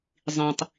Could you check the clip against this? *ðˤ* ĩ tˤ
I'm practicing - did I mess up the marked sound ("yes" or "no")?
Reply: yes